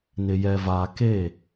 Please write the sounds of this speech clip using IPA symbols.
n ɪ˨ j ɛ˨ v aː˨ k e˦˨

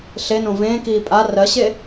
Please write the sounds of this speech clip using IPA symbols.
ɬ e n õ v ẽː k iː pʼ a r ɜ ɕ e

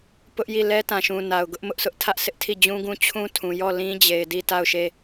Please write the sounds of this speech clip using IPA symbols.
p ʊ˦ ʔ j i˦˨ l ɛ˦ t ã˨ ʃ ũ˨ n a˨ ʊ̯ ɡ ʊ˦ ʔ m ʊ˦ ʔ s ʊ˦ ʔ tʰ ä˦ ʔ s ɪ˦ ʔ tʰ i˦˨ d͡ʑ ũ˦ ɡ ũ˦ t͡ɕʰ ũ˦ tʰ ũ˨ j ɔ˦˨ l ĩ˦ d͡ʑ e˨ ɪ̯ d i˦˨ t a˦˨ ʊ̯ ʃ e˦˨

